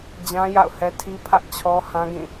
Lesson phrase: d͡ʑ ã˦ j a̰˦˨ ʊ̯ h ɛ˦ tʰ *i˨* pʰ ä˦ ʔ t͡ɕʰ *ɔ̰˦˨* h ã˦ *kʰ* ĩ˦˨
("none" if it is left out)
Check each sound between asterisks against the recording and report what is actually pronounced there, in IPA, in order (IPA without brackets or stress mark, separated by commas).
i˦, ɔ˦, ɡ